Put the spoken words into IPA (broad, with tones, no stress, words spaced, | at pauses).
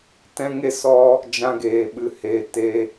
tɛ̃˦ŋe˦sɔ˦ | d͡ʒã˧ɡeː˨ ɓɨ˨heː˨ teː˧